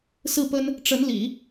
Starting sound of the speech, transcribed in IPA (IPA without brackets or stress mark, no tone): s